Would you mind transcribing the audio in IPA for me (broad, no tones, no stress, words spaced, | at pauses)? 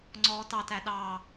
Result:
ŋ͡ǀɔːtɑtæ ɗɑ